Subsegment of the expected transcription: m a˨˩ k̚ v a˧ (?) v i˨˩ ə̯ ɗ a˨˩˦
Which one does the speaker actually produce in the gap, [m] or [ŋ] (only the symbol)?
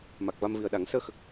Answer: m